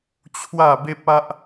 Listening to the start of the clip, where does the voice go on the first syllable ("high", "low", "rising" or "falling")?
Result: falling